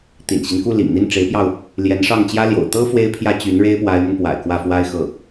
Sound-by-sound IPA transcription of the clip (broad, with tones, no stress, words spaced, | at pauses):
t̪ḭ˨˩nɕi˦nku˥˩ lḭ˨˩ŋn̪i˥˩nʈ͡ʂe˧˥ɪ̯pjɑ˧ʊ̯ | ljɛ˧˥n ʂɑ˥˩ŋt͡ɕjä˥ljo̰˨˩ʊ̯ t̪ɤ˥ fwe˥ɪ̯pʰjä˥t͡ɕy˧˥n ɻe˥ɪ̯pwa˧˥ɪ̯mə˧npwa̰˨˩ɪ̯ kwä˥˩fwa˥ɪ̯xɤ˥˩